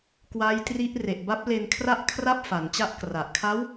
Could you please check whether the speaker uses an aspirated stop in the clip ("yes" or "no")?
yes